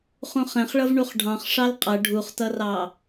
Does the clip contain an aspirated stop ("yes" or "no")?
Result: no